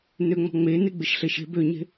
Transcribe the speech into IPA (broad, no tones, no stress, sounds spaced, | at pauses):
n ø ŋ͡m ɔ̤ ŋ͡m e n e ɡ͡b ɪ ʃ ɬ e ʃ e̤ b ø ɲ e̤